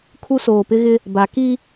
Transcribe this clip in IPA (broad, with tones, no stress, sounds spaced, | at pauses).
kʰ u˦ s oː˨ p ɪ˦ ɣ ɪ˦ | b a˨˦ k i˦